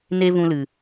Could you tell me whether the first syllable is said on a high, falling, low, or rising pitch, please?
high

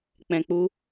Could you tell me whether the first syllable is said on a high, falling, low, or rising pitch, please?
low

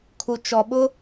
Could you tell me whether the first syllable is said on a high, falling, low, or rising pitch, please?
low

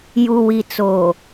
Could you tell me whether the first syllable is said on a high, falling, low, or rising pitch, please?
low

